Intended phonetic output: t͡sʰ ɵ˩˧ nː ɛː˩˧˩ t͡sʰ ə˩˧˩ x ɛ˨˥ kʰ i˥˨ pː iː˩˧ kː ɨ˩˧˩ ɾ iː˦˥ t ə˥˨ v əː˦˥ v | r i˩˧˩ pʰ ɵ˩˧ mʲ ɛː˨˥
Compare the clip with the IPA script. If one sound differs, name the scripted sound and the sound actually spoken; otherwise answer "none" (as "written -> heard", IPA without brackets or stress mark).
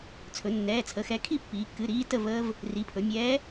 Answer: none